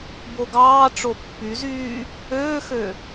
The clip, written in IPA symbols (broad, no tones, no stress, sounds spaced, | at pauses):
b o ɡ ɑː ʈ͡ʂ o pː y z yː | øː x ø